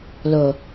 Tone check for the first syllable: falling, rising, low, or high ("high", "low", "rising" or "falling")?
low